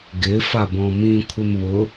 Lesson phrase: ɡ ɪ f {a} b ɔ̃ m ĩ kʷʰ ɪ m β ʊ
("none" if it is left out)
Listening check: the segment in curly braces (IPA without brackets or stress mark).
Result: a